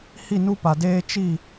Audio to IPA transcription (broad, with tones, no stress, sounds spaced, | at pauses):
h i˦˨ n u˦ p a˨ d eː˦ t͡ʃ i˦˨